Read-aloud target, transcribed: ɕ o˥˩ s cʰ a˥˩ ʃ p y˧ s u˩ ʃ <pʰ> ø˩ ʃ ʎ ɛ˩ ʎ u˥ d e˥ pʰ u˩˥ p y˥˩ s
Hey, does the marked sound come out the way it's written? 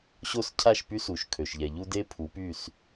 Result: no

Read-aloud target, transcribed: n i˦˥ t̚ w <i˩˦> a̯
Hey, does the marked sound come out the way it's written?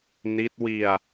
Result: no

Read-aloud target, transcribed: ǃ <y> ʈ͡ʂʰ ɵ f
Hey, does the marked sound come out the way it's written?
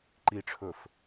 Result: no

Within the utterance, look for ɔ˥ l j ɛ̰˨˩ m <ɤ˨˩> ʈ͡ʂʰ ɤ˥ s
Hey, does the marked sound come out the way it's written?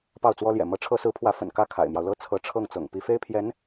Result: no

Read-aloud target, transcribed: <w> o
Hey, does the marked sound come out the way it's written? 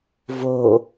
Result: no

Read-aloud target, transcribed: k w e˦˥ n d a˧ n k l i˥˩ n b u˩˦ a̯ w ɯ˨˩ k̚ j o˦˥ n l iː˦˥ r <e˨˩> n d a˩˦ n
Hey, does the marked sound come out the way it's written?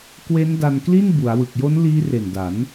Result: yes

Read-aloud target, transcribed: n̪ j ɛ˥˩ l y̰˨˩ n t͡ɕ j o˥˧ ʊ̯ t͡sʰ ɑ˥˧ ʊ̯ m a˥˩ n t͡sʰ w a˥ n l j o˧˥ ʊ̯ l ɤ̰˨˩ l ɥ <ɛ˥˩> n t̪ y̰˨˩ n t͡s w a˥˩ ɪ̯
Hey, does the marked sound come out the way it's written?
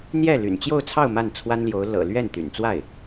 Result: yes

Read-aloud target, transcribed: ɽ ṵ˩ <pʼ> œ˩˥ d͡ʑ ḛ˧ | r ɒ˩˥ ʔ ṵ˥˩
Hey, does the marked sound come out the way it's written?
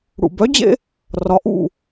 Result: no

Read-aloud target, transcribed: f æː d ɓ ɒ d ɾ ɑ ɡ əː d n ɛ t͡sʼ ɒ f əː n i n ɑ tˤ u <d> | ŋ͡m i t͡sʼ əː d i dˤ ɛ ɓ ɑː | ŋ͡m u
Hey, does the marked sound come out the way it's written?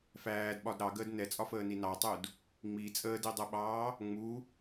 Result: yes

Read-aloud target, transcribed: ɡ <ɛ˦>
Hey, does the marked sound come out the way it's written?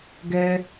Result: yes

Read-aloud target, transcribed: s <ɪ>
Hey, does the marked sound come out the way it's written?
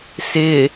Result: yes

